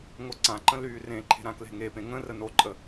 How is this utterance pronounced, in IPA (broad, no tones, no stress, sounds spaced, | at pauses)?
ŋ o ǀ ã ǃ ə̃ l yː r ẽ ǃʰ e̤ ɾ ã k l e̤ ŋ e p ẽ ŋ ə̃ r ə n o ǃʼ ə